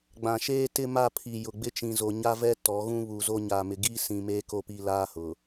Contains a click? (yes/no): no